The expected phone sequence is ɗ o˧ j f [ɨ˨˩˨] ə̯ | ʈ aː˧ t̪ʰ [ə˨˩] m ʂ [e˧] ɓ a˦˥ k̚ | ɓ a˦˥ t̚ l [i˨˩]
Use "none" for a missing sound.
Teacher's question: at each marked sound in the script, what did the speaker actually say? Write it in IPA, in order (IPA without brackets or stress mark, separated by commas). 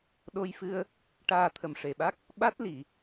ɨ˧, ə˨˩, e˨˩, i˨˩˨